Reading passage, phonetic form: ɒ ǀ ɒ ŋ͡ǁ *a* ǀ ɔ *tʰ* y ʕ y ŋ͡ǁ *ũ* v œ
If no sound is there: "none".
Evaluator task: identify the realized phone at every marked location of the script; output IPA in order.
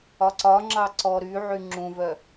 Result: ɑ, ɾ, ũ

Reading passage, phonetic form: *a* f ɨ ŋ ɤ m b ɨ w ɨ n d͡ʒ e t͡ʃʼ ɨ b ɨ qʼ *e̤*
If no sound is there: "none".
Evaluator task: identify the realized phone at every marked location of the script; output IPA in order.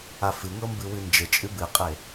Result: a, e

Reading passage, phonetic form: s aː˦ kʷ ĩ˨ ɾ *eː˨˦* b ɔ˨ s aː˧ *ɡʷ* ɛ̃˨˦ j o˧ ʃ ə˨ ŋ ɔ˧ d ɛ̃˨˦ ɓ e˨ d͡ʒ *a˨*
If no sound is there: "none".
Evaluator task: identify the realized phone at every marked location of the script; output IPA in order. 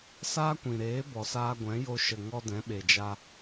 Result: eː˨˦, ɡʷ, a˧

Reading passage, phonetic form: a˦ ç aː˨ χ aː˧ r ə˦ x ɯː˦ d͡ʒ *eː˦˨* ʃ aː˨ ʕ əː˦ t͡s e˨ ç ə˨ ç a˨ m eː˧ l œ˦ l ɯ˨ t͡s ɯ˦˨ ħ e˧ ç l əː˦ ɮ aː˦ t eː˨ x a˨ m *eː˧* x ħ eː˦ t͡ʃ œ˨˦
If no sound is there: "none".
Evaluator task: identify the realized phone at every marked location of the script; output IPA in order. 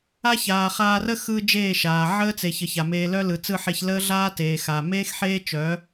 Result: eː˦˨, eː˦

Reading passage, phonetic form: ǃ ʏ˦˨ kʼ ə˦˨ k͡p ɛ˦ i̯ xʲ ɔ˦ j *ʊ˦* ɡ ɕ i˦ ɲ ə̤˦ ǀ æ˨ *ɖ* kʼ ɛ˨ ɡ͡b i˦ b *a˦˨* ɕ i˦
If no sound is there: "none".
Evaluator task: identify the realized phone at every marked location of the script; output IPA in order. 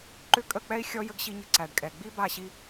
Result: ə˦, ɖ, a˦˨

